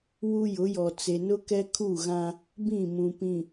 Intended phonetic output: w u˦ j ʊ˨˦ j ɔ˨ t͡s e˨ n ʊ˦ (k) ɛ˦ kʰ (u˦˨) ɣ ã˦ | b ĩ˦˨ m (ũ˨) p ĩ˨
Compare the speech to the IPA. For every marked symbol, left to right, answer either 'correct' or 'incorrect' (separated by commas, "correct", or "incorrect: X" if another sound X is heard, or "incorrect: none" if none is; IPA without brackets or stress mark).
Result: correct, correct, correct